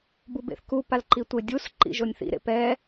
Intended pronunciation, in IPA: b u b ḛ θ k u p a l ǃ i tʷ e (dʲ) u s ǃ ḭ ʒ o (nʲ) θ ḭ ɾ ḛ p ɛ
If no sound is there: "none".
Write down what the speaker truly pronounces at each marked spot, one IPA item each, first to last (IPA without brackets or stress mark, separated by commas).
dʲ, nʲ